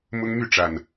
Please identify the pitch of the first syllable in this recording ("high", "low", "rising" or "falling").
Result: high